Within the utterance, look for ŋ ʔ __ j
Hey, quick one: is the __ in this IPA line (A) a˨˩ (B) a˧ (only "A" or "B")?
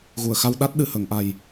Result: A